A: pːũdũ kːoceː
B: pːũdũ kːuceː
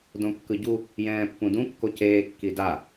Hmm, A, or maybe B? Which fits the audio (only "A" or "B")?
A